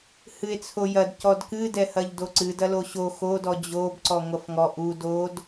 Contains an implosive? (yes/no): no